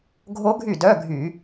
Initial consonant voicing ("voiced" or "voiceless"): voiced